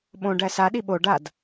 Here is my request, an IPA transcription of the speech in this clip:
ɓ õ ɖ æ s a ɗ i ɓ o ɖ a d

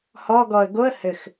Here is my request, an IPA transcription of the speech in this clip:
h ɔ ɡ ɔ ə̯ ɡ o ə̯ h ɘ x

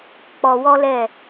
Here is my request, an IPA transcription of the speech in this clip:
k͡p ɔ˧ w ɔ˦ l ɛ˦˨

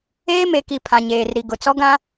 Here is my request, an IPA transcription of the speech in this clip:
eː˦ m e˨ k i˨ pʰ ã˨ ɲ eː˨ r ɾ i˨ ɡ ʊ˨ t͡s ɔ˦ ɡ ã˦

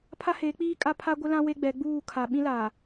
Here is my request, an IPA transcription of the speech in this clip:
pʰ a˦ h eː˨˦ k͡p iː˦ kʼ a˦ pʰ a˦ ɡʷ ɪ˦ l ã˦ w e˦ ɡ͡b ɛ˨˦ ɡ͡b uː˦˨ kʰ a˨ ɓ ĩ˦ l aː˨

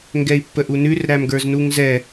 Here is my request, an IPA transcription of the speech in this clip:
ŋ ɡ ɛ i̯ pː ə ʔ u n ʉ r ɾ æ m ɡ ə˞ z n u ŋ z ɛ

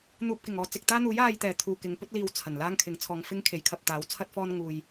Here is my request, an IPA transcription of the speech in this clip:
n̪ uː˨ p̚ k ɪ˨˩ ŋ ɔː˨˧ t͡s ɪ˧ k̚ t̪ aː˥ n̪ uː˨˥ j aː˨ j t̪ ɛː˨˩ t̪ʰ uː˨ k ɪ˨˧ ŋ p ɵ˥ t̚ l iː˨ w t͡sʰ ɐ˨˩ n l aː˥ ŋ kʰ ɪ˨˥ ŋ t͡sʰ ɔː˧ ŋ f ɪ˥ ŋ kʰ e˨˥ j kʰ ɐ˧ p̚ t̪ aː˨˥ w t͡sʰ ɐ˥ t̚ f ɔː˥ n ŋ uː˧ j

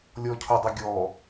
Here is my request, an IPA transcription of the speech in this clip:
lʲ ɔ cʰ ʊ dˤ ə ɡʲ ɔ

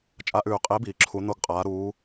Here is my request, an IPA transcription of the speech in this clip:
t͡ʃʼ a˧˩˧ ʔ ʉː˧˩˧ qʼ e˨˥ b iː˩ ǁʰ u˩˧ n o˧˩ ɡ qʼ aː˩˧ ɾ uː˩˧

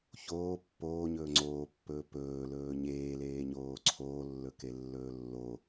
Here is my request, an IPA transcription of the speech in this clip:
ç oː pː oː ɲ ɵː ŋ͡ǀ oː pː ɵː p ɵː l ɵː ɲ eː l eː ɲ oː ǀʰ oː lː ɵ k e lː ɵː lː o

